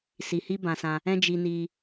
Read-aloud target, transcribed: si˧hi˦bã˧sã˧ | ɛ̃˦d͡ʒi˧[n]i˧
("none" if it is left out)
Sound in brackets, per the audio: n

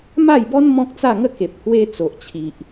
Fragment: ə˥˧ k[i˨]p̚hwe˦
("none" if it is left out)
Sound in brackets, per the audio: e˨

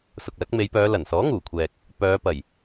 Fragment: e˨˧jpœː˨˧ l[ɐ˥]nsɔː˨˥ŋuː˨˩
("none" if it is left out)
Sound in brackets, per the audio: ɐ˨˩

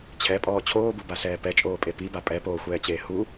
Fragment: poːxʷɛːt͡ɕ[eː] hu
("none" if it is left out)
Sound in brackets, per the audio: eː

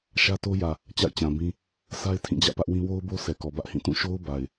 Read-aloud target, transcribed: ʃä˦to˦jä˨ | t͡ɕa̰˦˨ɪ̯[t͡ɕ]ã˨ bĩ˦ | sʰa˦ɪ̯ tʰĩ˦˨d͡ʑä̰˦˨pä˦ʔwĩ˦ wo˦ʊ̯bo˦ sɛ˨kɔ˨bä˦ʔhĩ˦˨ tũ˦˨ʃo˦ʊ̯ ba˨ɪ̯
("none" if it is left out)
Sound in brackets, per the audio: t͡ɕ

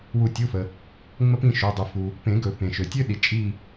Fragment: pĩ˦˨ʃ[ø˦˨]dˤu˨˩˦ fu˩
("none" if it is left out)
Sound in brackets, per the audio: ø˩˧˩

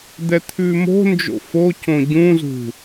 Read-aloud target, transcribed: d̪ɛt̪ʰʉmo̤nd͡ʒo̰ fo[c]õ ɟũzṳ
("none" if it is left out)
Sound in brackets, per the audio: c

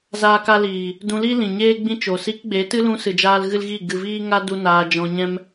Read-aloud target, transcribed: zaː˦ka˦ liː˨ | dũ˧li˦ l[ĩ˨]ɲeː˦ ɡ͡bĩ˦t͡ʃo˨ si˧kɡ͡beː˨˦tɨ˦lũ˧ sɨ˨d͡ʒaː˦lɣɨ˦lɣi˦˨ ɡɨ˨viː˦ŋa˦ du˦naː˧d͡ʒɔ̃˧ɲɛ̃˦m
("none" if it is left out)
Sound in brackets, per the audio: ĩ˨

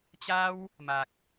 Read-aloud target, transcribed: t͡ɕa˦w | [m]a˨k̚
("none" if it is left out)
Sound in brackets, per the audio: m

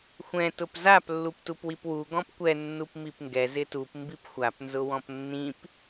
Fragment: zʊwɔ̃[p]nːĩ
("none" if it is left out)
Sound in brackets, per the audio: p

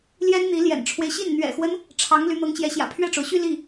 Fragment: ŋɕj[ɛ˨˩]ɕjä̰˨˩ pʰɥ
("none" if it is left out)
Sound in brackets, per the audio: ɛ˧˥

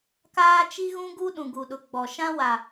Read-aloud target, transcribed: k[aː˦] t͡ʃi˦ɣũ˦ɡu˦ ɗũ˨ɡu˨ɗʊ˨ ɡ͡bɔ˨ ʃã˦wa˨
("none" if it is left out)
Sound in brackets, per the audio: aː˦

